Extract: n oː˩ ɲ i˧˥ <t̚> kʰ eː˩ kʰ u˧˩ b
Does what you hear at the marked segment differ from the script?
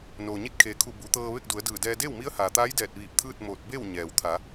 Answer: no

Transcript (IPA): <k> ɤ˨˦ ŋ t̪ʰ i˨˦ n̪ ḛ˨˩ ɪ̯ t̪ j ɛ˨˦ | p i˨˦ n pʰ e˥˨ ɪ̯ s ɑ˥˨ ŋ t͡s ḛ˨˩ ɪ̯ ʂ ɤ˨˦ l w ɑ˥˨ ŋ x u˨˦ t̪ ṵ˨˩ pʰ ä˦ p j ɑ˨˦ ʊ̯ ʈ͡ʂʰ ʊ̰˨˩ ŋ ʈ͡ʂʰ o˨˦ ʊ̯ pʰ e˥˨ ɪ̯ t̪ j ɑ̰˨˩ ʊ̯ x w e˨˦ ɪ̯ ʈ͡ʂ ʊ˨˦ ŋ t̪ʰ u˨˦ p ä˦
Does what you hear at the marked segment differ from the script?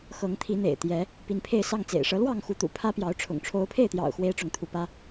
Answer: yes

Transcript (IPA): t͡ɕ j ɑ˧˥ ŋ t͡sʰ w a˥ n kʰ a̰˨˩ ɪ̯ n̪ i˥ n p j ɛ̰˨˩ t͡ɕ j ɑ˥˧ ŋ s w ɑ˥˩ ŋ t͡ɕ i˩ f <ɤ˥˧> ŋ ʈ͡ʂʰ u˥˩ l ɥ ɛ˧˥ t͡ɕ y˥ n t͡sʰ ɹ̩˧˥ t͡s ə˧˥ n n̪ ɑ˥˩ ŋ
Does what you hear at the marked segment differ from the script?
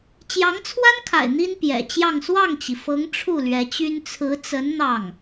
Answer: yes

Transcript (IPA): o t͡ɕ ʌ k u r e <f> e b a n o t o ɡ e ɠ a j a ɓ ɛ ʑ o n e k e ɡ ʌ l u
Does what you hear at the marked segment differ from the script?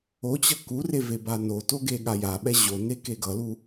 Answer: yes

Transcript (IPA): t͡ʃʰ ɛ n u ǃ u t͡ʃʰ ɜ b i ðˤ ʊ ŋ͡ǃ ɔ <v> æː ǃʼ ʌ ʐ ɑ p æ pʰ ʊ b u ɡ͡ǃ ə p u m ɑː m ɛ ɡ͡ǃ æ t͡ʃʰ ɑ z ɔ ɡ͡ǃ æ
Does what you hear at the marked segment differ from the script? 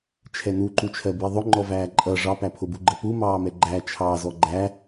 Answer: no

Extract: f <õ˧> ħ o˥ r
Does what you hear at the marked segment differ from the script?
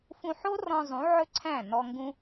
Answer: yes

